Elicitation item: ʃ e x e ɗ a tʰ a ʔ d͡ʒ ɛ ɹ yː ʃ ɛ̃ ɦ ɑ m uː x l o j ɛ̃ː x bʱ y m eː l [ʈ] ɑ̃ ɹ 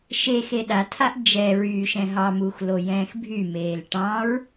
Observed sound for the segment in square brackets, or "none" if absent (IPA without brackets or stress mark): ʈ